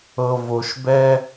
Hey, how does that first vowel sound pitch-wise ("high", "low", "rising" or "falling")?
low